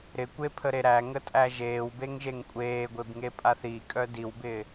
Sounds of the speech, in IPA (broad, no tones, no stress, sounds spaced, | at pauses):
ɾ ɪ kʷ e pʰ ə ɾ e ɾ æ ŋ ə tʼ æ ʒ eː w b e ŋ ʒ e ŋ kʷʼ eː ɡʷ e b ŋ e pʼ a θ i kʼ œ d i w b ɪː